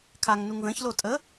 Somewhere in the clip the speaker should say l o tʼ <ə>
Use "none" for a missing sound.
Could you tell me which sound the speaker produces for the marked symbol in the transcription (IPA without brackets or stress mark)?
ə